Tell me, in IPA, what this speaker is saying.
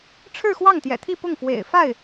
ʈ͡ʂʰ ɻ̩˥˧ x w ɑ˥˩ ŋ t̪ j ɛ̰˨˩ t̪ʰ i˥˧ p ʊ˥˩ ŋ f w ḛ˨˩ ɪ̯ f a˥˩ ɪ̯

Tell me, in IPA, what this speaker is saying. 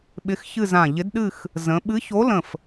ɓ ɪ˧˥ x ç ɨ˥˧ z ã˧˩ ʎ ɪ˧˥ d ɗ ɨ˥˧ x | z ə̃˧˥ ɓ ɨ˧˥ ç o˧˥ l ə̃˧˩ f

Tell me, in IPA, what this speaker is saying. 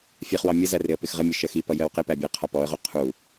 fʲ ɛ χ w ɑ mʲ ə z æ r ɪ ə̯ p ɪ x ʁ ə mʲ ʊ ʃ ɜ x i p ʌ j ɜ w q ɪ p æ bʲ ɜ qʰ ɒ p ɔ ə̯ ʁ u qʰ u

